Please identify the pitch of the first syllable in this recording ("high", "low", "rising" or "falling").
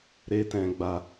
high